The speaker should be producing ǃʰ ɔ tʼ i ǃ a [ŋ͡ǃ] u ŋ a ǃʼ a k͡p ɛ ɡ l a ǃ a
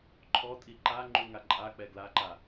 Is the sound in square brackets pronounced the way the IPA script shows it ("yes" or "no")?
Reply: yes